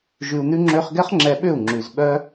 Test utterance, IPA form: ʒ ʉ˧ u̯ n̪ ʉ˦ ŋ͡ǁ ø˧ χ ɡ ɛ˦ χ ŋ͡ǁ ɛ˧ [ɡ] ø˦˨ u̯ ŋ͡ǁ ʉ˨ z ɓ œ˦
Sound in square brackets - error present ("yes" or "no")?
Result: yes